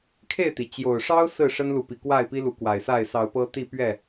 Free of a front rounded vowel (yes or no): yes